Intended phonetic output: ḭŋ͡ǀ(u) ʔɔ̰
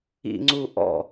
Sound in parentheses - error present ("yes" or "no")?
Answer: no